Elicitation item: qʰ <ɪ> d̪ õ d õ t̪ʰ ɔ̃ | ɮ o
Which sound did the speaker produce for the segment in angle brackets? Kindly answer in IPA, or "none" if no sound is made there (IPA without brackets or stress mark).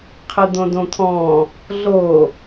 ɪ